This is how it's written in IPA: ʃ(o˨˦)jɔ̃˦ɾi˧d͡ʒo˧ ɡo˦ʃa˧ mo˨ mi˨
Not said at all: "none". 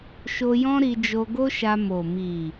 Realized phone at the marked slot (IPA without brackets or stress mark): o˧